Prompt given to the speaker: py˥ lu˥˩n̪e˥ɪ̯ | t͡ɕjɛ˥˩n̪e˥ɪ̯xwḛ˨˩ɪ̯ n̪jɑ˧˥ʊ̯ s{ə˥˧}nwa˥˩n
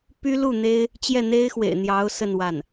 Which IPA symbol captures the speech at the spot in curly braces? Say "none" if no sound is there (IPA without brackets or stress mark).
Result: ə˥˧